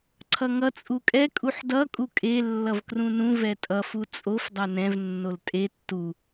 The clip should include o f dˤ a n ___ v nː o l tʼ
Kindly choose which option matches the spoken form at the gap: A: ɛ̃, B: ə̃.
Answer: A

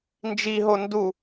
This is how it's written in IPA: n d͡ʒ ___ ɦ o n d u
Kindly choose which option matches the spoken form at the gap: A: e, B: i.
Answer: B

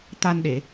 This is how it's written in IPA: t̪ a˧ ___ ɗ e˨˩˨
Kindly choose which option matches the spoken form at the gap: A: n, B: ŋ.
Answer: A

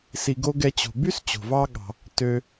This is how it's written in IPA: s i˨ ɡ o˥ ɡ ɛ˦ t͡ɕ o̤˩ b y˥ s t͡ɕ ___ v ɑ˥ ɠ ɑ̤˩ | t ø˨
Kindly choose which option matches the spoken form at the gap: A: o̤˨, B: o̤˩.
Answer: B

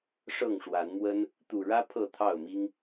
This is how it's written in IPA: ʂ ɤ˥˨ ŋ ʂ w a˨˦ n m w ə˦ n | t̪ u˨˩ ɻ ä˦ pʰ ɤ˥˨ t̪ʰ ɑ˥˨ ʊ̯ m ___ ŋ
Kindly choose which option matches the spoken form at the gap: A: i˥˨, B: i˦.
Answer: B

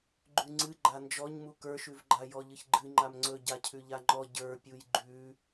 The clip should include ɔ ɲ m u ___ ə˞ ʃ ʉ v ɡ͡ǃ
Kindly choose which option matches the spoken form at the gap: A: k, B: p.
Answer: A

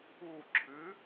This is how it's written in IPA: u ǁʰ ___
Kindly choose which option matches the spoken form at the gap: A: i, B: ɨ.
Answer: B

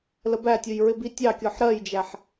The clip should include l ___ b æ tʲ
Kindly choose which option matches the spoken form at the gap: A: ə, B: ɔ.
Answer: A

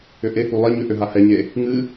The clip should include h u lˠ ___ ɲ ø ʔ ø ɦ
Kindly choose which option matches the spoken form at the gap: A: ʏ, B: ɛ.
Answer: B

